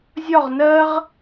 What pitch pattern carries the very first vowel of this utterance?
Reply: falling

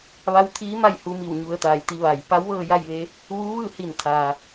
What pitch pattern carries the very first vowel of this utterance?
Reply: rising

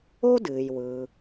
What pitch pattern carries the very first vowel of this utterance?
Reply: high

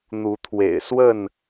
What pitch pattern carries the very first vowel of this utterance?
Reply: rising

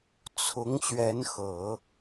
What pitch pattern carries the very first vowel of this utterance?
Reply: rising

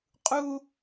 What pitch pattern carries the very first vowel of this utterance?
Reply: high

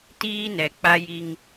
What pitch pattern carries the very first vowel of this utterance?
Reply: high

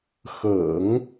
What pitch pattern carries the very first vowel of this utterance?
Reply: low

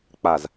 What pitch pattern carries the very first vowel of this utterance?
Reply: low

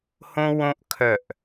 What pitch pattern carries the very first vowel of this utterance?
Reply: high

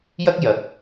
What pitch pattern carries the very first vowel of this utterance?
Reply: high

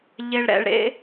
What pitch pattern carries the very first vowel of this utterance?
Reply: low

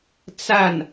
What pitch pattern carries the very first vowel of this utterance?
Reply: falling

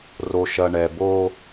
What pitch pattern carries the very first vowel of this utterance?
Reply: low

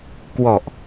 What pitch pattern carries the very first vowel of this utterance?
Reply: low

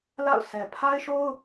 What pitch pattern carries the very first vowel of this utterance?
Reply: falling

